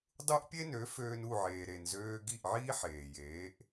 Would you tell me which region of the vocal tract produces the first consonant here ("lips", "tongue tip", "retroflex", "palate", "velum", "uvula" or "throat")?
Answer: tongue tip